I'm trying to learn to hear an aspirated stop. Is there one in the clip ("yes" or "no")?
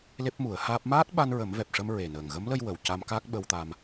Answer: no